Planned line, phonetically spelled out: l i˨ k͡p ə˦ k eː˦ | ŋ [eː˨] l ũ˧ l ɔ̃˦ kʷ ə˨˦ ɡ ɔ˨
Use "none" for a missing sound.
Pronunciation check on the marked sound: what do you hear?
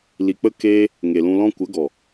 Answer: e˨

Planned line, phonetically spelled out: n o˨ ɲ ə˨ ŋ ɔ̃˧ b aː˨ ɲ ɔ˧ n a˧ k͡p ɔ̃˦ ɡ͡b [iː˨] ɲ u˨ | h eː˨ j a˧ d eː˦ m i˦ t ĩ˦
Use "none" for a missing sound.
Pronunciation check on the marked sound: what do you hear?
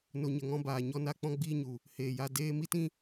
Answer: iː˦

